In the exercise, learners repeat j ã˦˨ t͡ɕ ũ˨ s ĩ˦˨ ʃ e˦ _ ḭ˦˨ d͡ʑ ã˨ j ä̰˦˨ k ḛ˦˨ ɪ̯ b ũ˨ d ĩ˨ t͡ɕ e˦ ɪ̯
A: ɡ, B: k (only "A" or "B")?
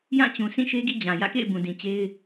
A